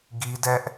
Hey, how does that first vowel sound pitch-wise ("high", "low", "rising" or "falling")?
high